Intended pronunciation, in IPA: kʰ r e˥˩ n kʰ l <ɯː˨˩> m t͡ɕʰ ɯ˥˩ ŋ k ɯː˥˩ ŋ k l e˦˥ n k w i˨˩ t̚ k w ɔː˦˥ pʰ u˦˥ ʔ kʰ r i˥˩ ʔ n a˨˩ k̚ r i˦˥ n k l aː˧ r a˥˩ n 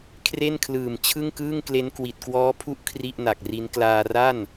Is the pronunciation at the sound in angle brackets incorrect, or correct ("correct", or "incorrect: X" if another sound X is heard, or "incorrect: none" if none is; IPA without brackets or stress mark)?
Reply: correct